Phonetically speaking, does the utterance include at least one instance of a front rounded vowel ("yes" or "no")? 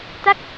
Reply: no